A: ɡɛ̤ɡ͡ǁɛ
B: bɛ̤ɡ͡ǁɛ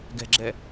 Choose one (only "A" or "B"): A